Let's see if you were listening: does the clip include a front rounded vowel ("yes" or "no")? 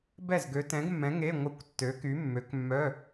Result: yes